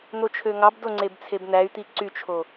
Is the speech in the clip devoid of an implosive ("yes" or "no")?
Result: yes